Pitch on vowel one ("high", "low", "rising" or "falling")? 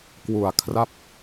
low